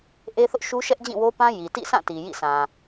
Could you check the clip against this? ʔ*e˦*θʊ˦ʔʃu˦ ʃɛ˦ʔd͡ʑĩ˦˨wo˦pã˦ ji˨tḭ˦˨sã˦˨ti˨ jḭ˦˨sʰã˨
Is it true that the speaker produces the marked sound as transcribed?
yes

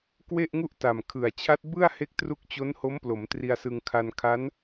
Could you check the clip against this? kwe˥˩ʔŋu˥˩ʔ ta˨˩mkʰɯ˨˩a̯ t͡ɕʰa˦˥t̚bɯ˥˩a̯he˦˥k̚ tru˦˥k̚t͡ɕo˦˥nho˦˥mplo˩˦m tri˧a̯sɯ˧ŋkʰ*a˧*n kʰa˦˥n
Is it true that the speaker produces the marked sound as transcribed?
yes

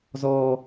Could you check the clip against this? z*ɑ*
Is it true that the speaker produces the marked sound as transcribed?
no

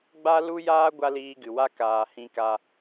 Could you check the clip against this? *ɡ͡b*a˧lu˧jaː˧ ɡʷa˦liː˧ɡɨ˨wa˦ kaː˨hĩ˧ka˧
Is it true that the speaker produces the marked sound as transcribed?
yes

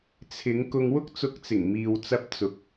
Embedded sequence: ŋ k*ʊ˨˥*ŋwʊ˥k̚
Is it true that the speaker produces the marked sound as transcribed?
no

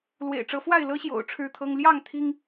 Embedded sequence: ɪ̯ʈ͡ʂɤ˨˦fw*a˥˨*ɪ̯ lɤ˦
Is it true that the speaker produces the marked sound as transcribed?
yes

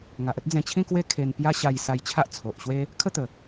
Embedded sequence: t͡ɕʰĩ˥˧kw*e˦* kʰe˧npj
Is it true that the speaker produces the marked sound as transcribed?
yes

